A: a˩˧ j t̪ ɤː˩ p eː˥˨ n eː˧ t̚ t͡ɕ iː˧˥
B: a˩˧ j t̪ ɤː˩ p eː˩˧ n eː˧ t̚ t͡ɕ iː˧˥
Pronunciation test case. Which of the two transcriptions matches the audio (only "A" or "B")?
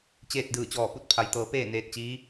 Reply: A